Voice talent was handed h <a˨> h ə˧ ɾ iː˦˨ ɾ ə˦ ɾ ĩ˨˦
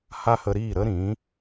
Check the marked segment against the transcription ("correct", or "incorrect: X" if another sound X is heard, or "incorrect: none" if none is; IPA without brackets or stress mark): incorrect: a˦